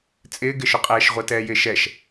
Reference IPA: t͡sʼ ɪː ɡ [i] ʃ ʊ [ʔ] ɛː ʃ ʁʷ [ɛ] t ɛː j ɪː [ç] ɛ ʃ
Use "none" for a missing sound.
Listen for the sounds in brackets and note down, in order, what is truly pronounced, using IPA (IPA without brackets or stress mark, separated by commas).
ɪ, qʼ, ɛ, ʃ